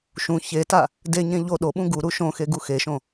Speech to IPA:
ʃ ũ ç e t a | d e ɲ ẽ ʎ o ɗ o ɓ ũ ɡ u ɾ u ʃ õ x e ɡ u x e ʃ õ

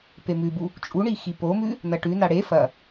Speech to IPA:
p e m ʉ b u | t͡ʃʼ u ɳ i x i p o m ʉ | n ɐ ʈ ʉ n a ɽ e f ɐ

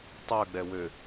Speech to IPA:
tˤ œ ɡ͡b ɛ w ø

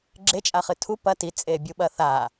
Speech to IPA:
ɡ͡ǁ e t͡ʃʼ a χ ɨ tʰ u p ɐ t i t͡sʼ e bʲ u ɓ ɐ θ a

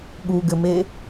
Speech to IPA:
ɠ u ɡ ɘ m e

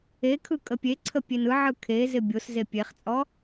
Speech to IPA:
e kʰ ɯ kʼ ə pʲ e ǀʰ ə pʲ e n ɯ ʕ ɯ kʰ e z ɪ bʲ o s z e pʲ e χ t͡sʼ ɔ

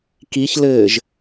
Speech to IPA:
k i ç l ɘː ʒ

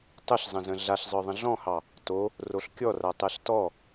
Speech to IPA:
tˤ ə ɬ zˤ ə̃ z ə̃ ɮ a ɬ zˤ ə˞ ðˤ ə̃ ɮ ɔ̃ h ɑ | t o | r o ɬ kʲ ɔ r a tˤ ɛ ɬ t ɔ

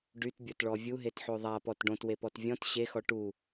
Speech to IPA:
ɖ y t bʲ o t ɭ ɔ vʲ u ɦ e t ħ o ðˤ a p ɔ t ɖ õ t w e p ɔ t vʲ ɔ̃ t ɕ e x ɔ ʈ u

